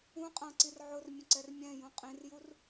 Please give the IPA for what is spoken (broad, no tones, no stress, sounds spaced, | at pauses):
ũ qʼ ã ǀ i r ʕ ʊ r mʲ ə̃ ǀ ɛ r mʲ ɛ̃ j ũ qʼ ĩ r j u r